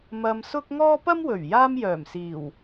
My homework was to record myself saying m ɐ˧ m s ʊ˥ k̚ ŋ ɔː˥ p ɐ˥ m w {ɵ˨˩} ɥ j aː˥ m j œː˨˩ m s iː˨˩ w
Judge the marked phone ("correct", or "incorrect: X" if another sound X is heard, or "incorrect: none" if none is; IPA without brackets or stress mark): correct